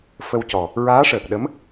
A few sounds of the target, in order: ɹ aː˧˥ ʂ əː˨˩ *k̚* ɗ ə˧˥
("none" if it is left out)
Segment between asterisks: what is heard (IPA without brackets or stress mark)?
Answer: k̚